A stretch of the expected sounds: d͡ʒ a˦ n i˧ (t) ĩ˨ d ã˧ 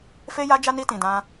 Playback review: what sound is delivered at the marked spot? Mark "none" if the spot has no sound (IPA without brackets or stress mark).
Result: t